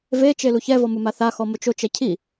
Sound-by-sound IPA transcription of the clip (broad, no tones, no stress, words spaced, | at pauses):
vet͡ʃe luçɛvɔ mumaθaxɔ mʊt͡ʃot͡ʃɛ cʰi